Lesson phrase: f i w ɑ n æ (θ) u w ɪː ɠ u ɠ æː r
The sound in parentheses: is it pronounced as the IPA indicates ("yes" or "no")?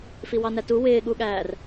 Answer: no